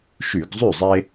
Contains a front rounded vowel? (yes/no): yes